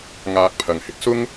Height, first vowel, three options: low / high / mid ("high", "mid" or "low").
low